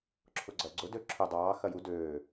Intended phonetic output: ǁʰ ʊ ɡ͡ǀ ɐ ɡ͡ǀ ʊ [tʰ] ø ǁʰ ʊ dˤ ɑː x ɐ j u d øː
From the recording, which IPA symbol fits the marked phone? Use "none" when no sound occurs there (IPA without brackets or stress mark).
d